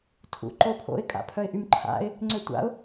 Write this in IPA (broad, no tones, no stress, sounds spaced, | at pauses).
tʰ ṵ ǃ o pʰ o̰ ɪ̯ kʼ a̰ pʰ œ ɪ̯ ʔ y m ǃʰ a̰ ɪ̯ | ŋ͡ǀ ø tʷ a̰ ʊ̯